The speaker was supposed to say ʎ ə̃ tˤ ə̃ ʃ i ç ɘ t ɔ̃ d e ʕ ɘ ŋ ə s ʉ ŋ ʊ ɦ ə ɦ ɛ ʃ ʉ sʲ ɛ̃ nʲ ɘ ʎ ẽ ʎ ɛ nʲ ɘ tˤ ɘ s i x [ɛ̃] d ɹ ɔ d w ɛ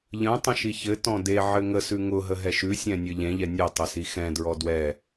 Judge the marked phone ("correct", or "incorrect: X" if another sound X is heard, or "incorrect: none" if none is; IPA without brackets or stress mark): correct